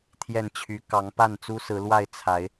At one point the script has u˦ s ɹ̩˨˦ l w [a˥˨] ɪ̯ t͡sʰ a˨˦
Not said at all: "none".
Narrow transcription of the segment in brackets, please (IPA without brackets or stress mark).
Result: a˥˨